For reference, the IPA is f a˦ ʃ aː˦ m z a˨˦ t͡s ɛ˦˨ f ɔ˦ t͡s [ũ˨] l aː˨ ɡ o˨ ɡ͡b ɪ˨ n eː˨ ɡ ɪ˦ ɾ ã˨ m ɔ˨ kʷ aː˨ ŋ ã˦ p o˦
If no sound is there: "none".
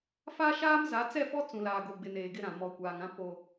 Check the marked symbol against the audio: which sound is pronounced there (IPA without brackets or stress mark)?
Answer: ũ˨